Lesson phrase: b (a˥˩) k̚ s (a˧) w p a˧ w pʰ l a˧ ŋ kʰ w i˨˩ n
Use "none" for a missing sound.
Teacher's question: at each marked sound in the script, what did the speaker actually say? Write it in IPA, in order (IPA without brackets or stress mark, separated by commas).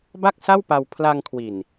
a˥˩, a˥˩